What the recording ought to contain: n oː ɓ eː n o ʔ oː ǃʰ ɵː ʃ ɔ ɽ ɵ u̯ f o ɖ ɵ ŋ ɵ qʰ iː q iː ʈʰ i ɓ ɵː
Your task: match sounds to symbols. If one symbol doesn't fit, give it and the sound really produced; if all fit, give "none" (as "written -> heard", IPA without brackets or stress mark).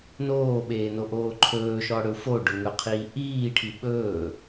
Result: q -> ʔ